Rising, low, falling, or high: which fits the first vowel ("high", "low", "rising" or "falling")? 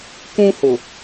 high